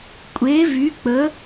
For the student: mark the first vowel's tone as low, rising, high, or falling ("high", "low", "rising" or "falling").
rising